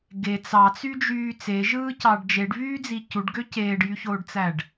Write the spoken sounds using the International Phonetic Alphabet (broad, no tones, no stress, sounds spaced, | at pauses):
ɡ e t͡s ɑ t͡s y d͡ʒ yː t͡s e ʒ ɯː c ɑ ɖ d͡ʒ e ɖ v yː d͡z i c u ɖ ɡ ø c eː ɖ j y ç oː ɖ t͡s æ ɖ